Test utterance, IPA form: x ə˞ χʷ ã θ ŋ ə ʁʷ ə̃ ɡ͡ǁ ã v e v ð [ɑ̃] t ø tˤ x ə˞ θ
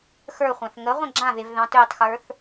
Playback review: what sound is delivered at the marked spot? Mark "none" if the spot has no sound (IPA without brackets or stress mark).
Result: ɑ̃